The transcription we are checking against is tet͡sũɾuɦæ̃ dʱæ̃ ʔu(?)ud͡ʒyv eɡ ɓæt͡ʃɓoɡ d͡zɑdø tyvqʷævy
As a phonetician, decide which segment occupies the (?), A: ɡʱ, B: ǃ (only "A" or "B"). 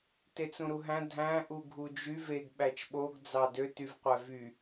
A